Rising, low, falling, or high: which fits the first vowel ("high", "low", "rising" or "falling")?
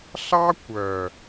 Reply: high